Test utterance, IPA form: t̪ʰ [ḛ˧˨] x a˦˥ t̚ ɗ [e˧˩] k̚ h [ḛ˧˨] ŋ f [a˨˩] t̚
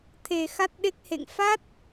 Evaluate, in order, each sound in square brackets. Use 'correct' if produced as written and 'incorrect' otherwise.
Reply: incorrect: e˨˩, incorrect: e˦˥, correct, incorrect: a˦˥

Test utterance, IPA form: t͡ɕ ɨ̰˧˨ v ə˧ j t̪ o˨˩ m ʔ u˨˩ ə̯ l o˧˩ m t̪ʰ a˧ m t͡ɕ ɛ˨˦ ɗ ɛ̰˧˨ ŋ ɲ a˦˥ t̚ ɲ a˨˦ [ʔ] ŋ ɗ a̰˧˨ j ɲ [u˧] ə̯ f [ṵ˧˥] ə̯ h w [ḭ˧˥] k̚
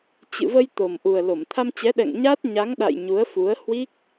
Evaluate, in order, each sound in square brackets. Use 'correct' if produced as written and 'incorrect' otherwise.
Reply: incorrect: none, incorrect: u˨˦, incorrect: u˨˦, incorrect: i˦˥

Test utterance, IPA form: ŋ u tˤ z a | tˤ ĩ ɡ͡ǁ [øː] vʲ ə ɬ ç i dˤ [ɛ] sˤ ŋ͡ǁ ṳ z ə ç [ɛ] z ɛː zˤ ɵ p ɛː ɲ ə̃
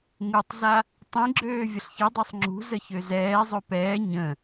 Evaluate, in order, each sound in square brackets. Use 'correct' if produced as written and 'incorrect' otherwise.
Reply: correct, correct, incorrect: ø

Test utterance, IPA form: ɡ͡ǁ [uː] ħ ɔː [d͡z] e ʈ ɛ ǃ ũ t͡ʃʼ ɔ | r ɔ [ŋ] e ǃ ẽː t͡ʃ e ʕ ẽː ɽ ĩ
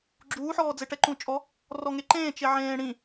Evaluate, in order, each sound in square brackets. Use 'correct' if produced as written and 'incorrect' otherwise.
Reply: correct, correct, correct

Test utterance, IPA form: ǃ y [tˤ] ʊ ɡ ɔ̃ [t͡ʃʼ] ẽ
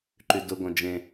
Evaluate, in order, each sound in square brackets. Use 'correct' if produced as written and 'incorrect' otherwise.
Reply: incorrect: d, incorrect: d͡ʒ

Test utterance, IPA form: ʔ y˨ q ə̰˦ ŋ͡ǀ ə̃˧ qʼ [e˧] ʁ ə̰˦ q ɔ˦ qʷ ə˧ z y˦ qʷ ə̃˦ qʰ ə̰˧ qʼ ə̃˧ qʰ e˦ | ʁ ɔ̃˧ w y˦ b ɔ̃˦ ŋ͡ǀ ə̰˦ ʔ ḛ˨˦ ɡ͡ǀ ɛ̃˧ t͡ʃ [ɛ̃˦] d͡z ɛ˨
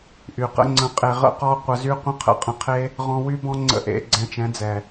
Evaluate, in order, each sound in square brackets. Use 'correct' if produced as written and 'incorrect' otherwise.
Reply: correct, incorrect: ɛ̃˨˦

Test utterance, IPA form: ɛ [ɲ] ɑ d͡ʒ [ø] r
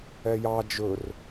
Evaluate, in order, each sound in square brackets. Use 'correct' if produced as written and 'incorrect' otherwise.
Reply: incorrect: j, incorrect: ɵ

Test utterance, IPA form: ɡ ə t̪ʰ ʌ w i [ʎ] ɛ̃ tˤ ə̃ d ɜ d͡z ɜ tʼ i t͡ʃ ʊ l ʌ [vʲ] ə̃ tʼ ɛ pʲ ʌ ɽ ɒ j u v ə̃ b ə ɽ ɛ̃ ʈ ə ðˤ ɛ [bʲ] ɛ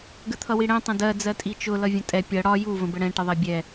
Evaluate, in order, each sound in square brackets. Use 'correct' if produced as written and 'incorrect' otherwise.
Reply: incorrect: ɽ, correct, correct

